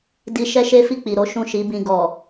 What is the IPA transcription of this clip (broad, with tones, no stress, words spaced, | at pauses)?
di˧ ʃɛ˦ʃe˦fi˦˨ k͡pi˨ɾo˨˦ ʃũ˦˨ʃi˨˦bĩ˧ ɡɔ˨